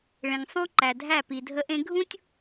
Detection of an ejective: absent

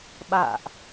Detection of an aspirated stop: absent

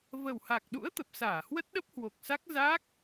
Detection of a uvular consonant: absent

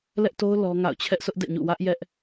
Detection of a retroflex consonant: absent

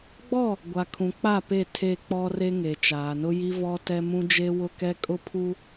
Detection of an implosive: absent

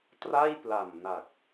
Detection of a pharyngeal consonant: absent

